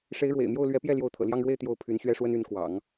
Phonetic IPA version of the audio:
ʂe˧˥ɪ̯ɻwḛ˨˩ɪ̯mjo˥˩ʊ̯ lɥɛ˧˥pjɛ˥˩ ljo˧˥ʊ̯t̪ʰɤ̰˨˩ljɑ˥˧ŋɻwe˥˧ɪ̯ t̪jo˥˩ʊ̯ pʰy˧˥nɕɥɛ˥ʂwə˥n y˧˥nkwɑ̰˨˩˦ŋ

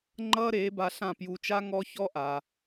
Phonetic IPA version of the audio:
ŋ͡ǃʌː˥ɾeː˩˥ba˧ɬã˥˩ pju˧t͡ʃa˥ ŋɔ˥ çɔ˥ʔa˩

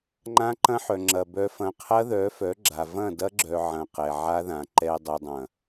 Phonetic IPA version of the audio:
ŋ͡ǃã˦ǃɐ̃˦ħœ˨ŋ͡ǁɐ˨ bœ˨fɐ̃˨ qʰɐ˦ðœ˨˦fœ˨˦ ɡ͡ǁa˨ vɐ̃˦˨dɐ˦ɡ͡ǁœ˨ ʕɐ̃˨ qɛ˨ʕa˦ðã˨ ǃɛ˨ dˤɛ˨dˤɐ̃˨

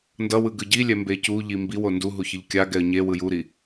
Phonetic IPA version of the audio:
ndʌwɯ ɡɯɟilʲɛ mbecuʎi mbiwo ndu ɦuçɯʎkʲaɡɛə̯ ɲe wɯjuɾi

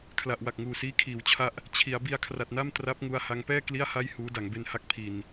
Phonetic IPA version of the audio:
kʰla˨˩ʔ wa˨˩k̚ŋuː˨˩siː˦˥ kʰiː˩˦wt͡ɕʰa˦˥ʔ | t͡ɕʰi˩˦a̯ bi˧a̯kʰra˨˩t̚na˥˩m tra˦˥p̚ŋu˧a̯ ha˧ŋpɛː˥˩ kli˥˩a̯ha˥˩j huː˦˥da˩˦ŋ be˧nha˦˥k̚ pʰi˧n

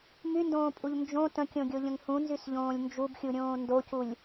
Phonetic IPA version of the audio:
myndõːpʼuʎ nd͡ʒõ tə̃kʲõɡʲoʎə̃ŋ hũnzysʎõːlʲ nd͡ʒubxʲuɾʲõː ndoculʲ

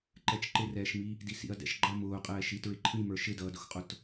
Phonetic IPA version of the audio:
ǃɛt͡ʃǃɪrɛːʃmi | disḭɐ̯dɛ̰ʃɡ͡ǃʌ mʊːqʼɛːʃi tɹɪǃʰĩmə˞ ʃɪdʌːdʊxqʼʊt

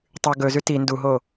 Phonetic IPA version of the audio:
tˤʉ ɡɵzʉ ti nduɦo

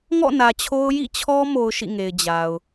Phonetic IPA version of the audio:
ŋɔ̰˦˨ nä˨t͡ɕʰo˦ʊ̯ jḭ˦˨t͡ɕʰɔ˦ mo˦ʊ̯ʃḭ˦˨ŋe˨ɪ̯ d͡ʑa˨ʊ̯

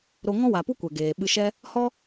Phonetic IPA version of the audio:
ɾo˧ ŋɔ̃˦wa˨pu˦ kʷɛ˨ɡeː˨ɓɨ˧ʃɛ˦ | hɔ˦

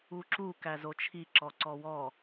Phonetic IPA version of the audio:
uǁu kæzot͡ʃʰi ǁɔǀɔwɔ

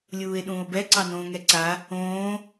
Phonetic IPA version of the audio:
lʲuːe̯ɗũːo̯bɛ ǀɑnõːŋɛǀa | õː

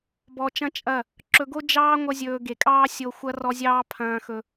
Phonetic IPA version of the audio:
bɔ˧t͡ʃɐ̃˦t͡ʃʼɐ˦˨ | ǁɵ˧ɡo˦ d͡ʒɑː˦ ŋʷʌ˦zʲɵː˧ ɡe˨kʼɑː˦ sʲo˧xʷɐ˦ rɔ˧zʲɑː˧ pʰɐ̃ː˧xɵ˧

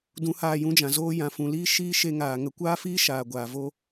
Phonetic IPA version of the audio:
dũ˧haː˦˨jũ˦d͡ʒã˨ zoː˧jã˨fũ˨liː˦ ʃiː˦ʃe˧ŋaː˨ ŋə˨kʷaː˦fiː˦ ʃaː˨ɡʷaː˨vo˦

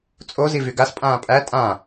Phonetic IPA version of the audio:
t͡sʼozi vyɡas pʼãːpʼæ tʼã

